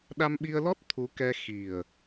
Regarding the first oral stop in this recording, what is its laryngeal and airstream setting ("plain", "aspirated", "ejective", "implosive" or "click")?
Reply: implosive